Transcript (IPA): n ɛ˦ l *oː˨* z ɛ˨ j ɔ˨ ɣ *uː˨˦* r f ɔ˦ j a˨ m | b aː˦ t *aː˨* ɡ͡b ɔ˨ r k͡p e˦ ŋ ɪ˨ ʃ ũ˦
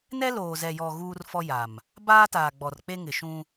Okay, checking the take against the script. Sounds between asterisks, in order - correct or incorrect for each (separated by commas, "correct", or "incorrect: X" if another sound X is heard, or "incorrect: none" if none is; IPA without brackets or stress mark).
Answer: correct, incorrect: uː˦, correct